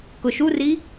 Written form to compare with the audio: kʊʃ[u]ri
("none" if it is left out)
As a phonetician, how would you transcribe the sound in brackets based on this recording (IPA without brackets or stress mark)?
u